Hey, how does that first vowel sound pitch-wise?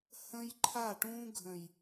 high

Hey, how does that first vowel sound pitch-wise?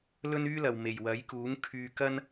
high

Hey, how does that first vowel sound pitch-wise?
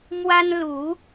high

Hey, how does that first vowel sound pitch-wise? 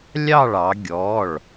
falling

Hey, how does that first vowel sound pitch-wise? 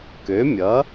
rising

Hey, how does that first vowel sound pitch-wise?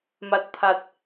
low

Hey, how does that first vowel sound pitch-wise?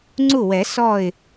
falling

